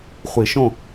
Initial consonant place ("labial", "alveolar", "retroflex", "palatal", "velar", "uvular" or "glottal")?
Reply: uvular